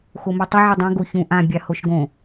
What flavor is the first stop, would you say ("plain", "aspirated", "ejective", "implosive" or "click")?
plain